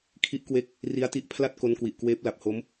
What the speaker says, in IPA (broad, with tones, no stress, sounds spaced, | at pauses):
kʰ i˦˥ ʔ k w e˦˥ k̚ | r i˦˥ a̯ t i˦˥ ʔ pʰ l a˥˩ t̚ k o˦˥ n k w i˨˩ ʔ k w eː˦˥ p̚ l a˨˩ p̚ h o˦˥ m